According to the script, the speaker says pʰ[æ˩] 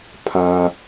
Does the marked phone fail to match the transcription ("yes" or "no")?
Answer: yes